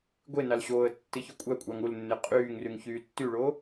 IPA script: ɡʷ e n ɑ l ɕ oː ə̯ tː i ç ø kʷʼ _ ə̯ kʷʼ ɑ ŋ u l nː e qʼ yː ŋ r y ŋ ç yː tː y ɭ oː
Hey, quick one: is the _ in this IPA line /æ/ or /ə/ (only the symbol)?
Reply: æ